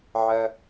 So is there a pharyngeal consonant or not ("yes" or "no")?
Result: yes